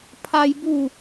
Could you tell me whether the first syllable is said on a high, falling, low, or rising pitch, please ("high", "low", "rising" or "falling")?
high